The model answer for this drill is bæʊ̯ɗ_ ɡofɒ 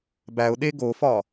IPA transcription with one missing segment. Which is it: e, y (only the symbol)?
e